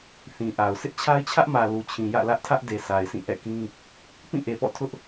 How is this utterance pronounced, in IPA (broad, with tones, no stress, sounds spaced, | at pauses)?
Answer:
θ ĩ˨ ʔ a˨ ʊ̯ sʰ ɪ˦ ʔ t͡ɕʰ a˦ ɪ̯ t͡ɕʰ ä˦ ʔ m ä˨ l u˨ t͡ɕʰ ĩ˨ j ä̰˦˨ l ä˦ ʔ tʰ ä˦ ʔ d e˨ sʰ a˨ ɪ̯ sʰ ĩ˦˨ ʔ ɛ̰˦˨ k ĩ˦ | p ĩ˦˨ ʔ e˨ p ɔ̰˦˨ tʰ ʊ˦ ʔ